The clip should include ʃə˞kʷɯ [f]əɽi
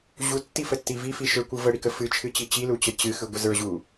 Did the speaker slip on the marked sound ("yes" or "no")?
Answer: yes